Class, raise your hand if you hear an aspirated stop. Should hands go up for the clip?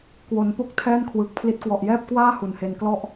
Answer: yes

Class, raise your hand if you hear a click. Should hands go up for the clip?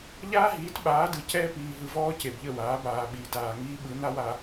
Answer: no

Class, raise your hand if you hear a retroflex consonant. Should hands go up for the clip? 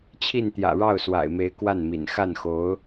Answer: yes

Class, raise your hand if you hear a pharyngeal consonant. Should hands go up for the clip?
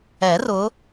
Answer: no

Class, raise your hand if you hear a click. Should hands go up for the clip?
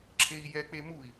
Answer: yes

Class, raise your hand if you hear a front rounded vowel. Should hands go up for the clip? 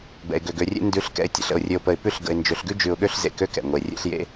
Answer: yes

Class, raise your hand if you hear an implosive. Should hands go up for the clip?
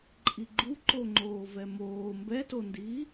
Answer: no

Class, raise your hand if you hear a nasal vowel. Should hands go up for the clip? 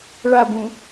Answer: yes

